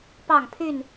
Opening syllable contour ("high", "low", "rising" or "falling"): falling